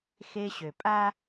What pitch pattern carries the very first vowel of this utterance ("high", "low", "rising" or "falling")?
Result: high